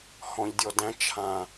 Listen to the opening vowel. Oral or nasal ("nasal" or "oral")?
nasal